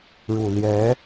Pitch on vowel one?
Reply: low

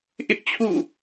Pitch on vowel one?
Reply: high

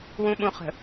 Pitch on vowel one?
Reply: low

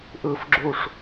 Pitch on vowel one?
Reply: falling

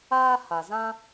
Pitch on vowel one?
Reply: high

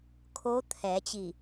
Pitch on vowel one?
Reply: rising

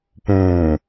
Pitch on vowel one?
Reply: low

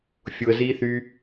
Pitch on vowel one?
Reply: low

